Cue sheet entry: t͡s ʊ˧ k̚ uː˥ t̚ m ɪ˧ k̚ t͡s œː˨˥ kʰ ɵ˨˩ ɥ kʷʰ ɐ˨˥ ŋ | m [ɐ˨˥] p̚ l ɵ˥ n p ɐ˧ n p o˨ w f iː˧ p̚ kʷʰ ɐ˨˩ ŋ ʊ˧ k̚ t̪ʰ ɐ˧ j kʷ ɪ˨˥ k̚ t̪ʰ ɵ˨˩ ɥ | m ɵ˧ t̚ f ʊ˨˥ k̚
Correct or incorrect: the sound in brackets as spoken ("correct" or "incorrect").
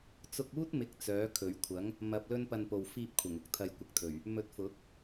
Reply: incorrect